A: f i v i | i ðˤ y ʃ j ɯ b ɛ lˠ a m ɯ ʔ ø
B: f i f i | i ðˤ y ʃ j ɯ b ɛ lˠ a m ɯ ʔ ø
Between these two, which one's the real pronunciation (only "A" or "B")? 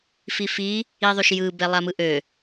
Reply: B